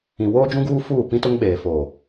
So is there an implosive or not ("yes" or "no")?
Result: yes